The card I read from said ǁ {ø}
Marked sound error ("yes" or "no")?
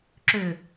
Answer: no